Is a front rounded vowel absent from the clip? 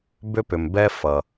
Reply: no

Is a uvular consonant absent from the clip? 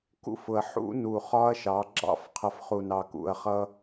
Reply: no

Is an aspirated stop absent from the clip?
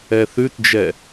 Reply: yes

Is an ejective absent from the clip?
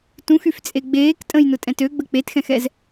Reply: no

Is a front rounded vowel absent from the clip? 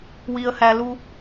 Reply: yes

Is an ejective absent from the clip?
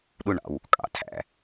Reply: no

